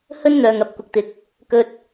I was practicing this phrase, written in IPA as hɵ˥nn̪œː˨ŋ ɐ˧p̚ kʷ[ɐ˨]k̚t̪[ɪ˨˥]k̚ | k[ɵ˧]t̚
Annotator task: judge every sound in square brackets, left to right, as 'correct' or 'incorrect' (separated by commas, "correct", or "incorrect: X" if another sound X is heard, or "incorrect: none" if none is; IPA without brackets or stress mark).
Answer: correct, incorrect: ɪ˨, correct